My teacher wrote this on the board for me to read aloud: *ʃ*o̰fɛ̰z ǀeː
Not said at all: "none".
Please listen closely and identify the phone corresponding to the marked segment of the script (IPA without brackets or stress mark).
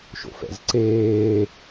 ʃ